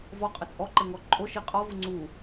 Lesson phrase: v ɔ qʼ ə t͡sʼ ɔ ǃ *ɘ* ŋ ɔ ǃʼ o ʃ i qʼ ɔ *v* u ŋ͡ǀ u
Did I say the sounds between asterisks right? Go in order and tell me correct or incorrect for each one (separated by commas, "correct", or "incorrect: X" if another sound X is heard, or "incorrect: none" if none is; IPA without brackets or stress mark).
correct, correct